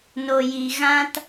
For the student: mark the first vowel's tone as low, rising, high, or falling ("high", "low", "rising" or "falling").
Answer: low